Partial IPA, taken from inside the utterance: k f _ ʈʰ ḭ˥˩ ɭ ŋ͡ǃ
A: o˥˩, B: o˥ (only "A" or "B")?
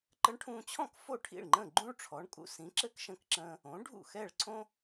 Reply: A